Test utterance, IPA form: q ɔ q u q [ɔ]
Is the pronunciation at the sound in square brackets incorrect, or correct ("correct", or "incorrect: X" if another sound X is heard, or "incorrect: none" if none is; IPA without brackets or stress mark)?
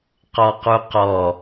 correct